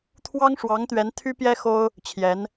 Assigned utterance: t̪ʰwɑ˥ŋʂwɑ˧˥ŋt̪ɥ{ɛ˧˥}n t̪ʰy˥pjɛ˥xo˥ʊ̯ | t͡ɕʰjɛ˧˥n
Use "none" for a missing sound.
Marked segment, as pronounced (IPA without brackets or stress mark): ɛ˧˥